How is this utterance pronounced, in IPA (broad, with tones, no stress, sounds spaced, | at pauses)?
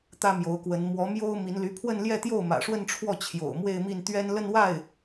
t̪ ä˥ m j o˧˥ ʊ̯ k w ə˧˥ n m w ɔ˧˥ m j o˥ ʊ̯ m i˧˥ n l y˧˥ pʰ w ə˥˧ n l j ɛ˥˧ t̪ j o˥˩ ʊ̯ m ä̰˨˩ ʂ w ə˥˧ n ʈ͡ʂʰ w ɔ˥˩ t͡ɕʰ j o̰˨˩ ʊ̯ m w e˥˧ ɪ̯ m i˥˩ n t̪ ɥ ɛ˥ n l ə˥˧ n w a˥˩ ɪ̯